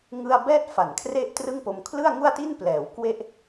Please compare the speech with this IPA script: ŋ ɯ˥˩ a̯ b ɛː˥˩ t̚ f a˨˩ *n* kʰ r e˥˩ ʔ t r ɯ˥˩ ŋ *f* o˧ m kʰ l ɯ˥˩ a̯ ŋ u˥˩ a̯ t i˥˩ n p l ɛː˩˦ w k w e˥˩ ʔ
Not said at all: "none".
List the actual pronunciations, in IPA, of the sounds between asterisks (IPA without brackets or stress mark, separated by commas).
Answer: n, p